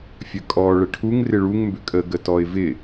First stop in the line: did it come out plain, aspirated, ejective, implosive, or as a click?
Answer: ejective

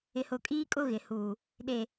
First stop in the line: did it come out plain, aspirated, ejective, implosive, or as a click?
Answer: ejective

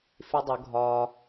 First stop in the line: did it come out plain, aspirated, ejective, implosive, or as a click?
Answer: plain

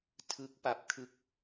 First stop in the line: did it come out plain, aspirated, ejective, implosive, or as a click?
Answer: aspirated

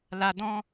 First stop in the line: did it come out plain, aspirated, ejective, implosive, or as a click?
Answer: plain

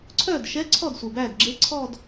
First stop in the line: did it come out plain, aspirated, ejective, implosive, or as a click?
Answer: click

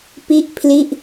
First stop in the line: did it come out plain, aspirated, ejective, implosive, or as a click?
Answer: plain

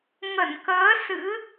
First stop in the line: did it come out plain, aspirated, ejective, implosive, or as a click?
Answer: plain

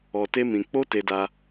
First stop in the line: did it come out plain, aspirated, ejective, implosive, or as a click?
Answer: plain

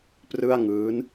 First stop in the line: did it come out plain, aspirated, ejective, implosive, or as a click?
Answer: plain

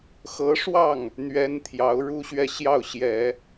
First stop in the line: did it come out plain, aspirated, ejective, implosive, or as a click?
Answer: aspirated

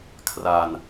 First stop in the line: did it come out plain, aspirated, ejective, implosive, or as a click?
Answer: aspirated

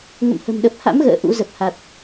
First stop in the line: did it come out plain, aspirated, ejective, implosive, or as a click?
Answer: implosive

